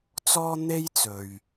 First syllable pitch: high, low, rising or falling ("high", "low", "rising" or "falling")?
high